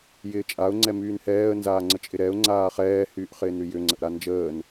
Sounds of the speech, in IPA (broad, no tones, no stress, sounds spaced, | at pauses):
j ɪː t͡ʃʼ a ʊ̯ ŋ͡ǀ ɛ m yː n h ɛː ə̯ n z aː ŋ͡ǀ ə t͡ʃʼ ɪ ɾ ɛ ʊ̯ ŋ͡ǀ aː χ ɛː h yː ʔ χ ɪː n ɾ y j ʏ ŋ͡ǀ ə ʔ ɾ a n d͡ʒ əː n